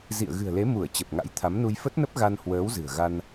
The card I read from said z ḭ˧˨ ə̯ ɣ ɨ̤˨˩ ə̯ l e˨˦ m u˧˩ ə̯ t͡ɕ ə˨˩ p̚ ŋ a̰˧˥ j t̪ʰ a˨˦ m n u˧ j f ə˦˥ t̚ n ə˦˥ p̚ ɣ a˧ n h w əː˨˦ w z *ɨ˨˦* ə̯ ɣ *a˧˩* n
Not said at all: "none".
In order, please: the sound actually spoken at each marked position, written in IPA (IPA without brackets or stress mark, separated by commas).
ɨ̤˨˩, a˧